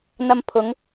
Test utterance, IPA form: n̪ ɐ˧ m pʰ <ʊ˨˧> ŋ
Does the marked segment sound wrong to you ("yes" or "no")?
no